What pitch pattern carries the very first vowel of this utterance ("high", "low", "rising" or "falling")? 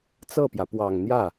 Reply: falling